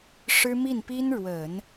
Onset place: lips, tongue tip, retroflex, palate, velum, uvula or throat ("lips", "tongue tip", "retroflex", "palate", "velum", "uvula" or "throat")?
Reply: retroflex